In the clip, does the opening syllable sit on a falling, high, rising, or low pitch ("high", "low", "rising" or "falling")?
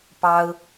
high